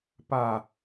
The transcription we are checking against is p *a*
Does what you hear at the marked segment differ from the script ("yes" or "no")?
no